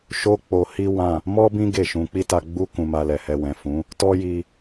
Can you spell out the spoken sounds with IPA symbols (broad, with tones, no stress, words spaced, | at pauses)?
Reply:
ʃo˦k͡po˧hi˦ wã˦˨ | mɔ˦bĩ˦ ɡe˦˨ʃũ˧ k͡pi˦ta˧ɡ͡bu˦ kũ˧ma˧lɛ˨hɛ˧ wɛ̃˨fũ˨˦ | tɔ˦ji˧